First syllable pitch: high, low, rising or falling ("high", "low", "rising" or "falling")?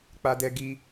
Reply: high